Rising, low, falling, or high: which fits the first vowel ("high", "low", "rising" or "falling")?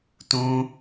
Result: high